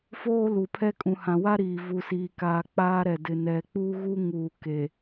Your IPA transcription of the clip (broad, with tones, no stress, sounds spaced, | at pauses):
f oː˦ l u˨ pʰ ɛ˦ kʼ ũ˨ h ã˨ w a˦ ɾ iː˨ v u˨ s iː˨ k aː˨ k͡p aː˦ ɾ ɛ˨ d ɪ˨ n ɛ˨ k͡p u˦ ɣ u˦ ŋ uː˨ k e˨